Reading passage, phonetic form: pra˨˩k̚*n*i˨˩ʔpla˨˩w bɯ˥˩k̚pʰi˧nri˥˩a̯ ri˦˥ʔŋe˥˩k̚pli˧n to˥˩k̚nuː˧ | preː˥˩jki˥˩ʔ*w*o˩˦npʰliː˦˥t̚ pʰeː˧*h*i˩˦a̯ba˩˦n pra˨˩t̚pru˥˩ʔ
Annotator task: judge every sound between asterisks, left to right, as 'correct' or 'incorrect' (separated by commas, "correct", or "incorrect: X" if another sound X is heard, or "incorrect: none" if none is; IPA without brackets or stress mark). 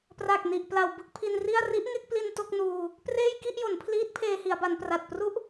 correct, incorrect: j, correct